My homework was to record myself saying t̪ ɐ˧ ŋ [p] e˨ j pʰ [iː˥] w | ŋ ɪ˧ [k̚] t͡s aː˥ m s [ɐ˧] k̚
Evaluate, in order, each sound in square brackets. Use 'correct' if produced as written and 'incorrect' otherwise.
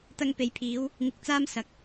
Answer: correct, incorrect: iː˨˧, correct, incorrect: ɐ˨˥

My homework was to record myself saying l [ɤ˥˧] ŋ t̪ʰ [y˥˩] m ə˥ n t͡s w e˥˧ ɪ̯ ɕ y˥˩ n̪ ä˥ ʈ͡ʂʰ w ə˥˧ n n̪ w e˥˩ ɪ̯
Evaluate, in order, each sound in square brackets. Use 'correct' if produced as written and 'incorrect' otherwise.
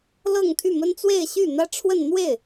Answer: correct, correct

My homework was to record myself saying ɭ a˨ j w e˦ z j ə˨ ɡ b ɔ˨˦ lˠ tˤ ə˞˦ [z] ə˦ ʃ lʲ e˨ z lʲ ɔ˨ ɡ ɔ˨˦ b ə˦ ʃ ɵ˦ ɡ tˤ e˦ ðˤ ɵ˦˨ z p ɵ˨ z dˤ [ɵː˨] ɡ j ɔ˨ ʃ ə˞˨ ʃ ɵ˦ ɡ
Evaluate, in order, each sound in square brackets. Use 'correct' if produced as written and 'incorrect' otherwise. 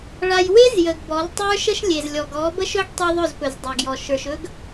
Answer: incorrect: ʃ, incorrect: ɵ˨

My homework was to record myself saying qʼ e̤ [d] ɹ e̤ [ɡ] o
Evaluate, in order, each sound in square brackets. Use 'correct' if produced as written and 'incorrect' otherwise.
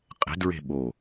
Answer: correct, incorrect: ɓ

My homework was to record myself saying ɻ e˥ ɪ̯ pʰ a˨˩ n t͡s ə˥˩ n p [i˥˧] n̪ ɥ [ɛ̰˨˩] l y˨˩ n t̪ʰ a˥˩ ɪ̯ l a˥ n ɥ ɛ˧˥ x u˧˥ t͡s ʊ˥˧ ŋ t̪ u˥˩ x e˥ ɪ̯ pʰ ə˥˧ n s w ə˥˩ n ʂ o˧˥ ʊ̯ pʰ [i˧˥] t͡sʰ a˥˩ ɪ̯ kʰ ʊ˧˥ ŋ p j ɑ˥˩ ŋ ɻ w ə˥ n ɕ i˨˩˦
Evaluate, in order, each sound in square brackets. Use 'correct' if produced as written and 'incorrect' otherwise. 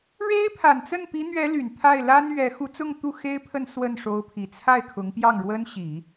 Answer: incorrect: i˧˥, incorrect: ɛ˧˥, incorrect: i˨˩

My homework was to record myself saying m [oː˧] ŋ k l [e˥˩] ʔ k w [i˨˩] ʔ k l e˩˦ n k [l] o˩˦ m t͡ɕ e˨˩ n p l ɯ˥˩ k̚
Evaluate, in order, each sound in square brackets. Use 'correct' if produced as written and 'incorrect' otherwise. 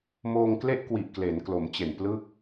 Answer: correct, correct, correct, correct

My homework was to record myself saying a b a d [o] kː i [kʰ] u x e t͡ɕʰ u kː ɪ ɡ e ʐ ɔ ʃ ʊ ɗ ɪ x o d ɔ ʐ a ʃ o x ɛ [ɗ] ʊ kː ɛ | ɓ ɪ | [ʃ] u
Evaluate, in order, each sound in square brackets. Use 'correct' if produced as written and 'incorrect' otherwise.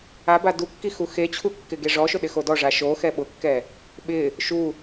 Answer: incorrect: u, incorrect: x, incorrect: ɓ, correct

